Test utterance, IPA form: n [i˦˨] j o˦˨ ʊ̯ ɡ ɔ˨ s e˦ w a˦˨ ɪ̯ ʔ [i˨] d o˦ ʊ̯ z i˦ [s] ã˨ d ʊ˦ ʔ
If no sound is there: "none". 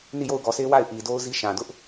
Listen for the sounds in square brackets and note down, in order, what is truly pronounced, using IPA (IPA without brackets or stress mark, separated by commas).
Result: i˦˨, i˨, ʃ